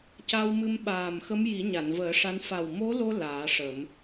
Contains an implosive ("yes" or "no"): yes